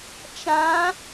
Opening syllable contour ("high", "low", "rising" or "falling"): rising